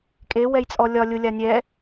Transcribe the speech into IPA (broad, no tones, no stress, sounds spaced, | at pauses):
kʼ e w ɛ j t͡sʼ ɔ lʲ ɒ lʲ ʊ lʲ a nʲ ɛ